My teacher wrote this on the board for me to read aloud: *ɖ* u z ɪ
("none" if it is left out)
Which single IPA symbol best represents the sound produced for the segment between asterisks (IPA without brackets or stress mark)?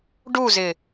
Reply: ɖ